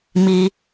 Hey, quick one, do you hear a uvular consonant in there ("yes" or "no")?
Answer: no